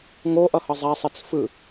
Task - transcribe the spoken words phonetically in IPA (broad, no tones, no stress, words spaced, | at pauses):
ŋoʔʌhʌ zˤasˤet͡s fɯ